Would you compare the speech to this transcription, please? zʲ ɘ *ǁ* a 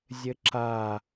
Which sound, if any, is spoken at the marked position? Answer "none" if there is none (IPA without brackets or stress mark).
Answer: ǁ